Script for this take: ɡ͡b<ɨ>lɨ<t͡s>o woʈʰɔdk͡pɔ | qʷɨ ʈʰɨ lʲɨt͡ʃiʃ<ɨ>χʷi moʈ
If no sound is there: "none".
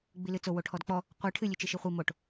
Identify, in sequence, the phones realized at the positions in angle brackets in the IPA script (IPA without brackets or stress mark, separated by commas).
i, t͡s, i